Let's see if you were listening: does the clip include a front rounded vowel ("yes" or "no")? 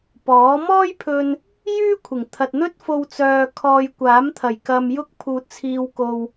yes